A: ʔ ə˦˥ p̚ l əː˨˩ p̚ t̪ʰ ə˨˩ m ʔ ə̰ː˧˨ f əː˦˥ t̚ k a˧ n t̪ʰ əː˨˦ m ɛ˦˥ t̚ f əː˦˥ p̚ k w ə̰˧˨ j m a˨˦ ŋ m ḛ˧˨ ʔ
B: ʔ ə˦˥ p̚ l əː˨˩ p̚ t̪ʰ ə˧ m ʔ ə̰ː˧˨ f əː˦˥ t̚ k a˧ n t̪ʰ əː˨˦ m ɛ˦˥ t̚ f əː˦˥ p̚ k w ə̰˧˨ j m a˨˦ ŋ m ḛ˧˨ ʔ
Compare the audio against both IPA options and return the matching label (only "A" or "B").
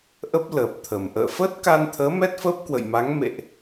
A